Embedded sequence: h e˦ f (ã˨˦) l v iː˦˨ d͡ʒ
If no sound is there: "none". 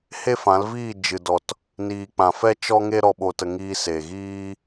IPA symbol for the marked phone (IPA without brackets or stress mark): ã˨˦